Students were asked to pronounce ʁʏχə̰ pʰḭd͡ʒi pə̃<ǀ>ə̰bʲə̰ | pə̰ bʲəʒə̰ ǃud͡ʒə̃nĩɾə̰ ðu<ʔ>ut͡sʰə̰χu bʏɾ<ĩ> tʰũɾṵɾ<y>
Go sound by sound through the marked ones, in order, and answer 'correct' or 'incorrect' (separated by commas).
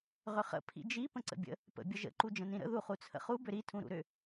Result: correct, incorrect, incorrect, incorrect